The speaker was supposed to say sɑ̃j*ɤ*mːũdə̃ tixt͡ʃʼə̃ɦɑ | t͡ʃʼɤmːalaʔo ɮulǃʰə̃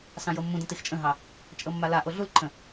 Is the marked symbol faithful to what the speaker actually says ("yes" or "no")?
yes